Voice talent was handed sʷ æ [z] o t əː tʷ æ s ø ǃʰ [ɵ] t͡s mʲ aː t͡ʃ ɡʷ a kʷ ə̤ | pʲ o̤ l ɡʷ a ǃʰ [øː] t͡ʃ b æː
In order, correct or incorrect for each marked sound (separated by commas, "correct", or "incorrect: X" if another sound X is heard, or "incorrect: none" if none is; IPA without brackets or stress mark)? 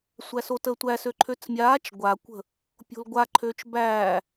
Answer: incorrect: s, incorrect: ø, correct